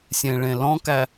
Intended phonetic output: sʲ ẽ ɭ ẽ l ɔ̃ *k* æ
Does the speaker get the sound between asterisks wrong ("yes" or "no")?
no